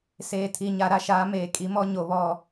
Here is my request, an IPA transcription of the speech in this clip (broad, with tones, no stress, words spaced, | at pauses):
seː˨tʰi˨ɲa˨ ɾa˦ʃaː˨˦ meː˨kʼi˨˦mɔ˦ ɲo˨βɔ˦˨